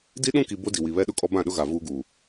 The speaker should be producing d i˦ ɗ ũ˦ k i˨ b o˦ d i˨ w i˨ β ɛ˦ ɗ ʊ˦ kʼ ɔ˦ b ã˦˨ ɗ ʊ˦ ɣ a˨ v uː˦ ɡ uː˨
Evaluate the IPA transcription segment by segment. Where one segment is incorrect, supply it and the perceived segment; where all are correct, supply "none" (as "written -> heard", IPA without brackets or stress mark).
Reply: none